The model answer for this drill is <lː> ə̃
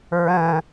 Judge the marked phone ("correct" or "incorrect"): incorrect